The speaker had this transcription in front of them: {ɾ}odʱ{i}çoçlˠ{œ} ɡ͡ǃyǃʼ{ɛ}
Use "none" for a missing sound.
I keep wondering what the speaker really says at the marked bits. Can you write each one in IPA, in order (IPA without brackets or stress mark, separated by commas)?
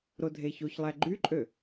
ɾ, e, æ, ø